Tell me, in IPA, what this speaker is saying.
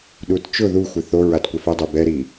ɗutt͡ʃʊ ðuxʷɪ θo ɹatkʷɛfɛdˤe bɛɾi

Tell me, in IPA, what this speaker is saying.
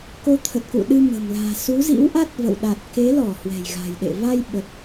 ko˨˦t̪ʰə˨˩t̚kṵ˧˨ ɗɨ˧mə̤˨˩mla̤ː˨˩ su˨˦zḭ˧˥wʔa˦˥t̚ və̰˧˨w ɗa˨˩t̚ke˨˦lɔ˧˩ hwɛ̤˨˩jɣa̤˨˩jɗḛ˧˨ va˧j ɓə˨˩t̚

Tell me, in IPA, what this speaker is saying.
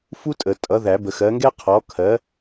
fu˥tʼə˨˩˦tʼʌ˨˥ ðæ˨˩˦bə˨˩˦xɜ˨˥ŋɡɛ˥ qʰɔ˨˥ kʰɜ˨˥

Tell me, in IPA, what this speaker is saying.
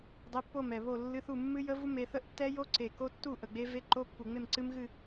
dˤe˧˥˧pːo˥˨mɛ˨˩βo˥˨ lːɨ˧˥˧θu˥˨ mːɨ˦˥jə˦˥vu˦˥ me˦˥ θə˦˥ʔtːɛ˦˥jo˦˥ǀe˨˩ ko˦˥tːu˥˨ ʔə˨˩ɡ͡be˦˥ ve˧˥˧ǃo˧˥˧pːu˨˩ŋ͡me˥˨m ǀɨ˦˥m ɣɨ˥˨

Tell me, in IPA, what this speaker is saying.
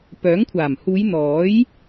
pœː˨˥ŋkʷʰaː˨˩m huː˨˧j n̪ɔː˨˥j

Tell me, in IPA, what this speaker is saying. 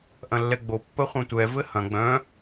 ʔɐ̃lːɛɡ͡bo pːəχʷœ̃tʷɛ vɘhɐ̃ ɡ͡bœ̃

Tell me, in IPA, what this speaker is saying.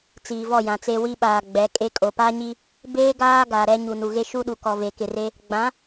t͡siː˨vɔ˦˨jã˨t͡se˦ wi˦ɓaː˨ ɡ͡bɛ˨˦kʼe˦ kʼo˨pa˦ɲi˦ | beː˦ɡaː˦ ɡa˨ɾɛ˦ ɲu˨nu˨ɣe˦ ʃu˦ɗu˨kɔ˨ ve˨kɪ˨re˦ | ɡ͡bã˨˦

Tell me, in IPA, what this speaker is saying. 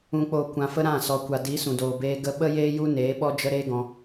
ũ˨k͡poː˨ kʷã˨fə˧ ɾã˦˨ sɔ˨kʷa˨di˨˦ sũ˨doː˨beː˧ ɡə˧ ɓə˦jeː˦ ju˦ neː˨˦ ɓɔ˦d͡ʒə˦ ɾeː˦ɡɔ̃˧

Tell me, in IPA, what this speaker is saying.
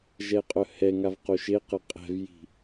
ʒɛqʼœhɛŋav qoʃeqə qʼɛ̤vji̤

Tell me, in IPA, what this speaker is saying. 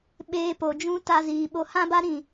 ɓeː˧po˨d͡ʒũ˦ ta˧ziː˨ɓo˧ hã˦ba˦ɾĩ˦˨

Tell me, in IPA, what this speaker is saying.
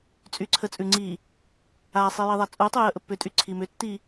t͡sʼyǀʰət͡sʼʉ ŋ͡ǀi | asˤi jiðˤat͡sʼutˤʉ jəʔəpːʏtʼy ǀʰimʏtːi

